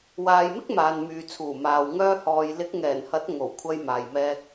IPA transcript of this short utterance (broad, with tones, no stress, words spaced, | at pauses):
waː˨jmɪ˥k̚ maː˨nmyː˨t͡sʰuː˨˩maː˨w ŋœː˧hɔː˨j lɪ˨˥k̚ŋɛː˨˩nhɐ˨˥t̚ ŋo˨˩wkʷʰɐ˧jmaː˨jmɛː˧k̚